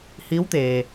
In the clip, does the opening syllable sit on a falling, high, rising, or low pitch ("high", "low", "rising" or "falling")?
rising